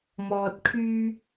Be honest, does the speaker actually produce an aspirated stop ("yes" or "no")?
yes